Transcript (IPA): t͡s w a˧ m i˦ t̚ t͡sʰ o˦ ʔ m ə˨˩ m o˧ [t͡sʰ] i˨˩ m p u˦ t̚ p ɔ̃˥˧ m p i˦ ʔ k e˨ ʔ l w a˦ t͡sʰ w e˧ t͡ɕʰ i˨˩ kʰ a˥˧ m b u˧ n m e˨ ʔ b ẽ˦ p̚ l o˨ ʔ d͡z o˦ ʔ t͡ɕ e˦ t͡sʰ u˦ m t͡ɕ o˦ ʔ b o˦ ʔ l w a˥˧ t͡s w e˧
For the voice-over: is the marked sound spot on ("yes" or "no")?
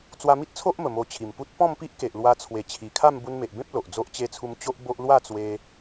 no